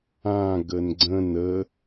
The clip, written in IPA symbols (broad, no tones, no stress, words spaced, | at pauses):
ã ɡənɡ͡ǀə̃n ə